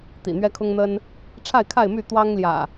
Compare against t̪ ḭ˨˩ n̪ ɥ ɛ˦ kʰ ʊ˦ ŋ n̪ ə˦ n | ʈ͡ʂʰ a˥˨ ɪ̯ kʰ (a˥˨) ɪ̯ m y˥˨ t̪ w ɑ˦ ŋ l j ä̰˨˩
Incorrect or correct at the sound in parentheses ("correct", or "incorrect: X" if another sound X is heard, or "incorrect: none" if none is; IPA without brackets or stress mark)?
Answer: correct